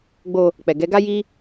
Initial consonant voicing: voiced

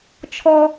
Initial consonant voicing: voiceless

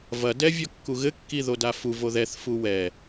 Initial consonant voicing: voiced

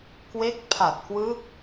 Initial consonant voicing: voiceless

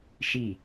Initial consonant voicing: voiceless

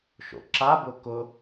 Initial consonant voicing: voiceless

